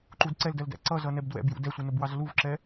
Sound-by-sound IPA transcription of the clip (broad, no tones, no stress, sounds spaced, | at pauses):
ǃ u d ǀ ɛ l d ɜ l d æ̰ ǀ ʌ z ʌ n ɛ b d w ɛ̰ b j ṵ d ɛ sʷ ɪ n ʊ b w ɑ z l u v ǁ ɛ